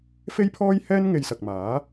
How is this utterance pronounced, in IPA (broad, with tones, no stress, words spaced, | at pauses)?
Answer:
fe˥jpʰɔː˥jhɛː˥n ŋe˧jsɐ˨k̚maː˨˥